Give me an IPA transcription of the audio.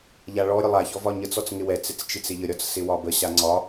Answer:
ʎ a ɭ ɔ ɾʲ ə lˠ a ç ɔ v ɒ ɲ ə t͡s ɔ t͡s ŋ ɪ w ɛ t͡s ɪ t͡s t͡ʃ i t͡s ɪ ʎ ə ɾʲ ɒ t͡s s ɪ w ɒ b ə ɕ a ŋ͡ǀ ɒ

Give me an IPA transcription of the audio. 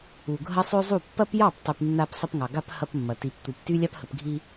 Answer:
u˨ ɡʱ ɐ˦ sˤ ø˦ zˤ u˦˨ pː ɐ˦ p j ɑ˦˨ p tˤ y˨ p nː a˦ p sˤ ə˦ p ŋ ɑ˨ ɡ a˦ p h ɐ˦ p mː ɐ˨ t i˨ p t̪ u˨ p t y˦ lʲ a˦ p h ə˨ p ɡʱ i˦

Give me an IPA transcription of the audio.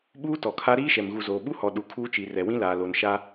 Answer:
ɓ uː˦ t ɔ˨ kʰ a˦ ɾ iː˦ ʃ ɛ˨ m ɣ u˨ z oː˨ ɓ u˦ h ɔ˨ ɗ u˨ kʰ uː˦ t͡ʃ i˨ r ɛ˨ w ĩ˦ l aː˨ l o˨ n ʃ a˦

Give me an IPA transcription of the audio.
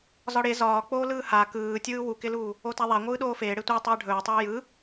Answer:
z ɒ ɽ e z ɒː k͡p oː l ɯː h a k ɯː tʲ ɯː w u k ɪ l uː | o t a ðˤ a ŋʷ ɯː ɗ oː f eː ɽ e tʷ a tˤ eː ɖʱ ɵː tˤ ɯː j ɯ

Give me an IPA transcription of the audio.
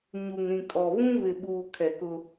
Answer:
ɲ u˨ ŋ ɾ ĩ˨ kʼ ɔ˨ β ũ˦ β ɪ˨ ɓ uː˨ kʰ ɛ˨ k ʊ˦

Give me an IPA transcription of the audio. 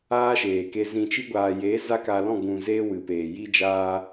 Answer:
aː˦ ʃ eː˨ k e˧ z ĩ˨ t͡ʃ i˧ ɡʷ aː˨ j e˨˦ z a˦ k a˧ l ɔ̃˦˨ ɡ ũ˨ z eː˧ w ɨ˨ p eː˨ j i˦ d͡ʒ aː˧

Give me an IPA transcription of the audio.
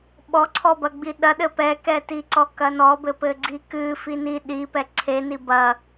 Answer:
ɓ ɔ ǀʰ ɔ b ɐ ɡ͡b i ɗ ɐ ɗ ɘ p ɛ k ɛ t i ǀ ɔ k ɐ n ɔ b ɘ p ɘ ɡ͡ǀ i k ɨ f i n i ɗ i p ɛ ǀʰ e n i b ɐ

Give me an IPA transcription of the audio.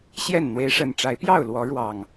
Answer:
ɕ j ɛ˥˨ n n̪ w e˨˦ ɪ̯ ʂ ə˨˩ n ʈ͡ʂ a˨˦ ɪ̯ p j ɑ˥˨ ʊ̯ l w ɔ˨˦ ɻ w ɑ˨˩ ŋ

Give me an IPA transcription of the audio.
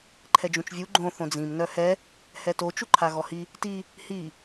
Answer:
ǃʰ ɛ d͡ʒ ũ t͡ʃ vʲ u ɡ͡ǃ õ θ õ d͡z ĩ m n œ h ɛ | h ɛ t o t͡ʃ u ǃʰ a ɣ ɔ h i | t i | h i

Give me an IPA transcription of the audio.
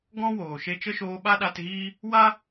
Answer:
ɡ ɔ̃˦ w oː˨ ʃ e˧ t͡ʃ ə˦ ʃ oː˧ ɓ a˦ ɗ a˧ t ɣ iː˦ | w a˦

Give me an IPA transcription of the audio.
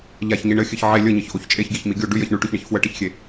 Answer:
ʎ a ç ɲ i ɳ ɘ xʲ ɘ ç ʕ e lʲ ə ɲ ɘ ç ʔ o ç t͡ʃʼ e ç ɡʲ e ç m i ɡʲ o ɖ ʉ j ɜ ç ɳ ʉ ʈ o ç ɳ i ç f w ə ʈ ə ç xʲ e

